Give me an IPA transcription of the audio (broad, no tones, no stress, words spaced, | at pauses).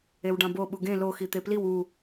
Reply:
ewɖɑ̃bo ɓuɡẽ loxi t̪epliw u